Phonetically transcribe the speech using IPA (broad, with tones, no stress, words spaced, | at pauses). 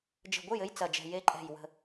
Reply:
d͡ʒə̤˧˩ɡʷɨ˥˩jɘ˧˥j t͡sɐ˧˩d͡ʒɛ̤˧˩ je˧˥ǃʼɛ̤˧˩j wə̤˧˩